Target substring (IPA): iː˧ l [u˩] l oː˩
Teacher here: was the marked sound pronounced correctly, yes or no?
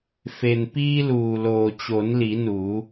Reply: no